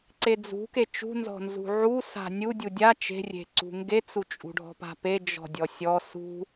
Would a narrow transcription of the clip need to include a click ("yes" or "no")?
yes